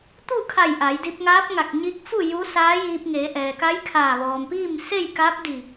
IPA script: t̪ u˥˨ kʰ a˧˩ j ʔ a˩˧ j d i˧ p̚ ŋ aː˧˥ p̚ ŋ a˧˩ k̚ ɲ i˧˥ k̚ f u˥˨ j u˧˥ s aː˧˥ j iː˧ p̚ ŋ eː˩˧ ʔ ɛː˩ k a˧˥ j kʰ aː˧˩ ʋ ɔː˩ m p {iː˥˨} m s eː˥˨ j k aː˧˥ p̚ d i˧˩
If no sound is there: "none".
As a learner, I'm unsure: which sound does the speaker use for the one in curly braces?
iː˥˨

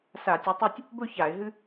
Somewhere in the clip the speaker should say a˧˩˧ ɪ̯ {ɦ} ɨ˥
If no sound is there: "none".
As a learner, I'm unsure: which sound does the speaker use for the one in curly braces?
ɦ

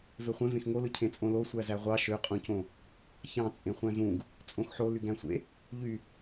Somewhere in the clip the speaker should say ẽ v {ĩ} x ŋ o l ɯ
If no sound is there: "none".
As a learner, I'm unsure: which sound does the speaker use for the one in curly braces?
ẽ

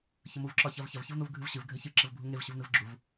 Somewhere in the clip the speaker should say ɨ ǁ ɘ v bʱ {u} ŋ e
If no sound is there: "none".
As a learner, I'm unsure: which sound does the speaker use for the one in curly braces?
u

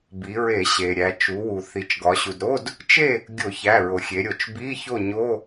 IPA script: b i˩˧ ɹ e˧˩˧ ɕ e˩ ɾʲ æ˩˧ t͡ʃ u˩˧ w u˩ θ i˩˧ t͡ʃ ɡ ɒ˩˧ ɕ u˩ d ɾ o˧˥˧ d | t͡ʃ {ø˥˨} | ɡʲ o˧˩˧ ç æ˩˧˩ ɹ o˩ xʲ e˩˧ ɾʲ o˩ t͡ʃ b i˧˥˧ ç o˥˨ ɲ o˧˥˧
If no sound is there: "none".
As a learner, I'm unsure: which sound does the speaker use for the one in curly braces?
e˥˨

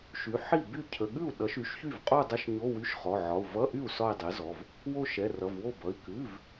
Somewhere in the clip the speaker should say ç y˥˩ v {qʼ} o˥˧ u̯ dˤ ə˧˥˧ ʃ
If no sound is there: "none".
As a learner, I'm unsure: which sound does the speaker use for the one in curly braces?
qʼ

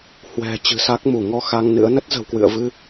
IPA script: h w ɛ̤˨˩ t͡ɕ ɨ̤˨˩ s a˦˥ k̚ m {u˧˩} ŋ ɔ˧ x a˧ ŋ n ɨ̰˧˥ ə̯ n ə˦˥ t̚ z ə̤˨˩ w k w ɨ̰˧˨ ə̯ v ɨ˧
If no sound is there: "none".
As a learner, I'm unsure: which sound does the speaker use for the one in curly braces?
u˧˩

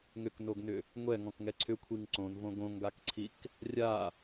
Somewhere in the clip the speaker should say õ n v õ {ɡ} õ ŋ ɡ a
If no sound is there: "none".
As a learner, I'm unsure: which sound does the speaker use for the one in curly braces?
ɡ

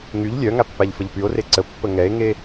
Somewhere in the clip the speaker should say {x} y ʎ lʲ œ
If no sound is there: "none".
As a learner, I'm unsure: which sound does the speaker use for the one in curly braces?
ŋ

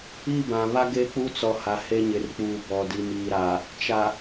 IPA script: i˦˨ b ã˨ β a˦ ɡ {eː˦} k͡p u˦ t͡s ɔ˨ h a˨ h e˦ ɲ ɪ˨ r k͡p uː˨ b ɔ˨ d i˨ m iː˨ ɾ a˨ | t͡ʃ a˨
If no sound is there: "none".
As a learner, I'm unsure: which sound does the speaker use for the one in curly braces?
e˦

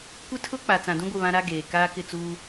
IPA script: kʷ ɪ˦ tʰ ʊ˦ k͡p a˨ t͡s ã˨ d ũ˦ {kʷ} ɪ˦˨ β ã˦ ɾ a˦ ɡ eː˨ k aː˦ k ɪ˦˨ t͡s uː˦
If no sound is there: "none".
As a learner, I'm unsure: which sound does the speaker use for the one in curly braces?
ɡʷ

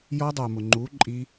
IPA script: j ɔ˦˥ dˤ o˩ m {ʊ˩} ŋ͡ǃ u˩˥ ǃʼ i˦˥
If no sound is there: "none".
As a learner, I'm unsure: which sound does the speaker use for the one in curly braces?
ʊ˩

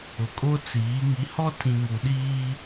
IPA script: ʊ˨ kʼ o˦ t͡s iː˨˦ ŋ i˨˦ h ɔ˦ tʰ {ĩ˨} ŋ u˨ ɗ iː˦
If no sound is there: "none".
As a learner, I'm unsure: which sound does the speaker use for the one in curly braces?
ĩ˨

